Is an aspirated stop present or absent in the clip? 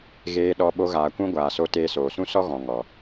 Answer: absent